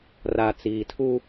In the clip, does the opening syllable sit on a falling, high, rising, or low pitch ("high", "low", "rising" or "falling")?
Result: low